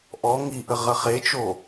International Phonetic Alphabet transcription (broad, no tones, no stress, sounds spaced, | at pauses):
ʔ ɔ ŋ i ʔ ə ʁ ɐ χ e t͡ʃ o